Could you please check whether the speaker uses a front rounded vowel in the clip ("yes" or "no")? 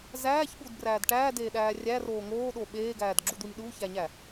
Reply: no